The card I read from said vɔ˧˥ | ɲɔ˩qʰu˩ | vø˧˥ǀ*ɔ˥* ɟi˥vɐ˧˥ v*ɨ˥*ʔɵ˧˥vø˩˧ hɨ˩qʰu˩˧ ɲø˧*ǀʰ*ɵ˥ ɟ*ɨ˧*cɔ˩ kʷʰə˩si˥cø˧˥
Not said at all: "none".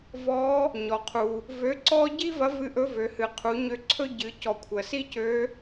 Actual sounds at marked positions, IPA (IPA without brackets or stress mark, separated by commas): ɔ˥, ɨ˧˥, ǀʰ, ɨ˩˧